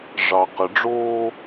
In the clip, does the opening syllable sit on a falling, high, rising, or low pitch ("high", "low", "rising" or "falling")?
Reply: low